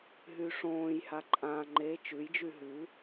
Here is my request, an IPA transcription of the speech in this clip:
ɦ y ʂ õː j h a ǃʼ ã ŋ͡ǃ e t͡ʃ ʉ j d͡ʒ y ɦ ʉ

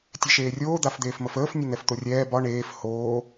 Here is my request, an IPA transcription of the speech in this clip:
tʲ ɛ ʃ eː rʲ oː d̪ a f d̪ eː f m ə f əː f nʲ ə n̪ ɛ f t̪ o rʲ ɛː b ɒ ɳ eː f h oː

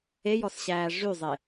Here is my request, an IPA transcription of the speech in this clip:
e j ɔ s ɕ æː ʐ y zˤ e

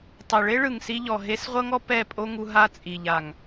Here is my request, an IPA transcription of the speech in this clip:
tˤ ɛ˨ ɭ e˦ ɭ ɯ˨ ŋ s i˧ ʎ ɔ˨ ɦ e˧ s ʁʷ ɤ˦ ŋ ɔ˦ p ɛ˦˨ pʼ o˦ ŋ u˧ ɦ a˦ t͡sʼ i˨ ʎ a˨ ŋ

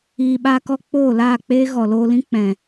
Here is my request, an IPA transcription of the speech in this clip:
iː˨ ɓ a˧ k ɔ˧ k͡p oː˦˨ l aː˦˨ k͡p eː˦ ɣ ɔ˨ l oː˧ l ĩ˦ k͡p ɛ̃˨

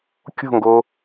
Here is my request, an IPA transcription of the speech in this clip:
kʲ o̤ ŋ ɡ o

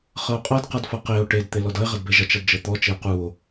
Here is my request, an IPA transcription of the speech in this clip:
χ ɤ o̯ qʼ ɤ d q ʌ d f ʌ q e o̯ ʈ e d t̪ e l ɔ d ʌ e̯ ʁ ʌ d b e ʒ ʌ t͡ʃ ʌ d d͡ʒ ɤ t̪ ɔ t͡ʃ e o̯ q u o̯

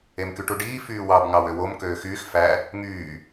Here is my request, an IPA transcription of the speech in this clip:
e m k y ʈ u ɖ iː f yː w ɑ b ŋ ɑ w ø w o m k øː x yː x f æ | ŋ yː

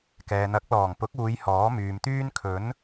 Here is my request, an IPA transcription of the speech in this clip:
k ɛː˨ n̪ ɐ˨˥ k̚ l ɔː˨˩ ŋ p ʊ˨˥ k̚ uː˨˧ j h ɔː˨˥ m yː˨ m t̪ yː˥ n kʰ ɵ˨˥ n

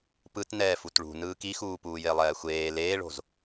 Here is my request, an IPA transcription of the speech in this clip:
p ɯ t n ɛː f u t ɭ ṳ n ɯː k i x uː p uː j e lˠ ɛː xʷ eː l eː ɭ o̤ z

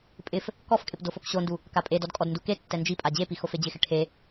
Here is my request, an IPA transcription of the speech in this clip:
pʼ ɪ f | k ɔ f kʼ ɪ p d o f o k ɕ o n d u | k a pʼ e d ɔ d kʼ ɔ d n d u k e tː ɛ n d͡ʒ i pʼ a d͡ʑ e p i x o f e d͡ʑ ɪ x ɪ ʈʰ e

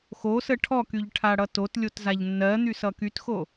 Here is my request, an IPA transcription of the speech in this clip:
x o s ə ʈʰ ɔ k y ʎ ʈʰ a ɽ ʌ t o t lʲ o t z a ʎ nː ɜ n̪ y s ʌ k y t x o

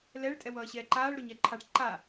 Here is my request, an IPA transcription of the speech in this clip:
l ɛ ɭ tʼ ɛ w ʌː ɕ ɛː ǃ aː ɭ ɾ o ɲ ɛ ǃʰ a ʈ ǃ a

